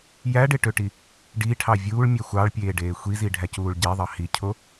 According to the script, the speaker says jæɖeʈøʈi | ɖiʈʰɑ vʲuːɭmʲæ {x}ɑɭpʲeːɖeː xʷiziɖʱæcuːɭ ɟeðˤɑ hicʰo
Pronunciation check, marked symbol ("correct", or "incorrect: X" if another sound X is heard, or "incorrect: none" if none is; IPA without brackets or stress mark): incorrect: xʷ